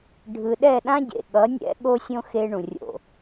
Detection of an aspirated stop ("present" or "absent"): absent